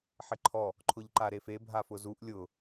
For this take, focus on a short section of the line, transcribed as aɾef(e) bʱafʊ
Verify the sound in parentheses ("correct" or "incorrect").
correct